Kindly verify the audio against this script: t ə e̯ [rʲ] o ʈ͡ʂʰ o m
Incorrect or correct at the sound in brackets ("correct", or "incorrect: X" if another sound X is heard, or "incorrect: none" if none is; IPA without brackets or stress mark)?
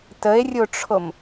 correct